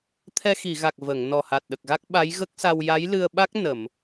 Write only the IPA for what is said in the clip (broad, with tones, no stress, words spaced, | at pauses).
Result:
t̪ʰɛ˧xi˨˩˨ɣa˨˩k̚ və˨˩˨ŋ nɔ˨˩ha˨˩t̚ɗə˨˩k̚ɣa˦˥k̚ ɓa˧˥jɣə˦˥k̚sa˧w ja˧˥jlɨ˧ə̯ɓa˦˥k̚ nə˨˩˨m